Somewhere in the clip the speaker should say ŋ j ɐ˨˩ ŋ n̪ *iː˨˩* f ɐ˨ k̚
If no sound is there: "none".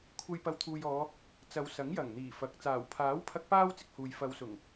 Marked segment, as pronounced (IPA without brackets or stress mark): iː˨˩